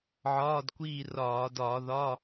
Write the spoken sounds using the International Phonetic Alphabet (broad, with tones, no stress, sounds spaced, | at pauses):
ʕ ɒː˧˥˧ d kʷ iː˦˨ r ɒː˧˩˧ d ɒː˧˩˧ ð ɒ˧˥˧